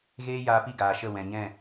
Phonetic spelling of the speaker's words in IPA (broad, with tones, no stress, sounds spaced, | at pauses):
ɣ eː˦ j aː˧ p i˦˨ ɡ aː˨ ʃ ə˦˨ w ɛ̃˨ ɲ ɛ̃˦˨